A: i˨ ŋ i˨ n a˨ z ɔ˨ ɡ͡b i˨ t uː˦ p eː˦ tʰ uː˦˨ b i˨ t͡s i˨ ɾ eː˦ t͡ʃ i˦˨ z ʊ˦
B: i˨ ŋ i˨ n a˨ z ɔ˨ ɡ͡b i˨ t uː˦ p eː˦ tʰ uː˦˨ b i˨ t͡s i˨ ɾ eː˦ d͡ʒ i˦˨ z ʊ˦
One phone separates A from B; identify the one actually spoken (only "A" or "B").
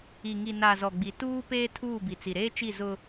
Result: A